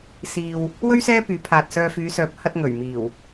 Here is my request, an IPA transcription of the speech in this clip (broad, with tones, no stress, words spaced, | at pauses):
siː˧w | wɵ˥ɥ sɛː˥pyː˨˥pʰaː˨t̚sœː˧ fyː˨˧sœː˨˥p̚ hɐ˧t̚ŋɵ˨˩ɥ miː˨˩w